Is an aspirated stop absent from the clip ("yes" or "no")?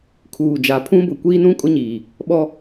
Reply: no